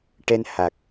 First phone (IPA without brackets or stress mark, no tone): ʈ